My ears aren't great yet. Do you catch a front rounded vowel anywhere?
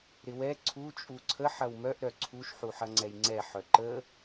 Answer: yes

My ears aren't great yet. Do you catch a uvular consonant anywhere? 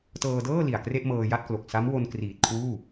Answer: no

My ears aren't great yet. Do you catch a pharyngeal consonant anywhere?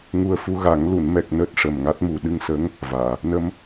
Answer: no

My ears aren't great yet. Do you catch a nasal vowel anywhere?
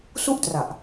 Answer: no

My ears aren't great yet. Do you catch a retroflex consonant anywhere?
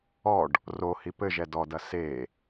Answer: yes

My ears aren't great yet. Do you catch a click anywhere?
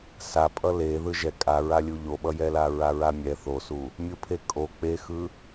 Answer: no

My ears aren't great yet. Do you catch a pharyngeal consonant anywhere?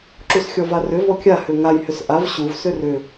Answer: no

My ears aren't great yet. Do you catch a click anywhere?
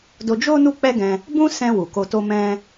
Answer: no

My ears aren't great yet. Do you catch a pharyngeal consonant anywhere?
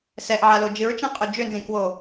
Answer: yes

